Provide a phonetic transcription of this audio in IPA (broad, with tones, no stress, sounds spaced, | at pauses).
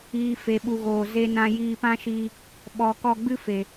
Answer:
iː˨ f e˨ ɓ u˨ ɣ oː˨ z e˦ n ã˦ j iː˧ p ã˦ ʃ iː˧ | ɓ ɔ˨ k ɔ˧ ɡ͡b ɨ˦ f e˨